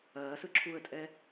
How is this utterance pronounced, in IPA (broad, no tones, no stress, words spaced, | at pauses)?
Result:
ɐːsɯ ǁʰuə̯tʼɛ